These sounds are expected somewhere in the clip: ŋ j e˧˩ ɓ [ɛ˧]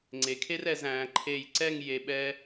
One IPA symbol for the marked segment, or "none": ɛ˥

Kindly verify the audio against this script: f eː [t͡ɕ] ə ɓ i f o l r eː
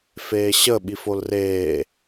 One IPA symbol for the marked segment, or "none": ɕ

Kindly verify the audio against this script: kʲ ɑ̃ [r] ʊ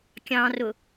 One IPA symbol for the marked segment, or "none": r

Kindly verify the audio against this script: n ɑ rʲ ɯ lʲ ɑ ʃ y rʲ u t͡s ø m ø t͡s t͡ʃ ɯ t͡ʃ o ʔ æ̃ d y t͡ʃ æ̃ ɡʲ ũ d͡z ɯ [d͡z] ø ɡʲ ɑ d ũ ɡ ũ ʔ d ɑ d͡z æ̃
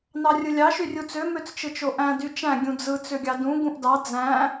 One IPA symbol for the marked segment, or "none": t͡s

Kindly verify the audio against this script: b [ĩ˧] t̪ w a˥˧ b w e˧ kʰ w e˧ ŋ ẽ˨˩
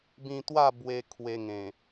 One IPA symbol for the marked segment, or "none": ĩ˧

